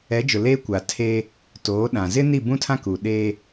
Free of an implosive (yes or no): no